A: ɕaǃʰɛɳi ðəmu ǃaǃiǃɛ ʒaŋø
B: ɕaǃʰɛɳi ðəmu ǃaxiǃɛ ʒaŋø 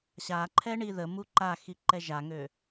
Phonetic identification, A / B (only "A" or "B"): B